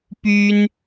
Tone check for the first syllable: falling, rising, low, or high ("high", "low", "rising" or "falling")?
high